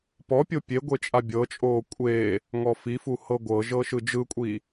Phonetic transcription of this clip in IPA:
p ɔ pʲ o pʲ e ɡʷ e t͡ʃʼ a bʲ ɤ t͡ʃʼ oː kʷʼ e | ŋ ɔ f i f u h ɤ ɡʷ ɤ ʒ ɤ ʃ ɯ d͡ʒ ɯ kʷʼ i

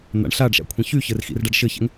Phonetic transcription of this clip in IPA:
n̪ a̰ ɳ ɬ a ɖ ʃ a̰ kʷʰ ɛ̃ ç y ç ɘ r x ḭ r ɖ a ɖ ʃ ɘ ç ɛ̰ ŋ

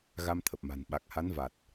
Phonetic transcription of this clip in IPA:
ɣ a˧ m t̪ʰ ə˨˩ p̚ m a̤˨˩ n ɓ a˨˩ k̚ h a˨˦ n v a˨˩ t̚

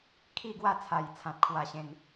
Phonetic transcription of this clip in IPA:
kʰ i˥˧ ɡ w a˥˧ t͡sʰ a˨˩ j t͡sʰ ã˨ t̚ kʰ w a˧ ɕ ẽ˧ n

